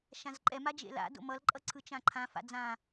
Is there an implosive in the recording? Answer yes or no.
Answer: no